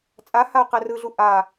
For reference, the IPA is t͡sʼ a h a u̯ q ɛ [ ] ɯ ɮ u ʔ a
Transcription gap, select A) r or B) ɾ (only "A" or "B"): A